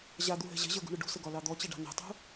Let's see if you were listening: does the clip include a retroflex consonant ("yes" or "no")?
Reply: yes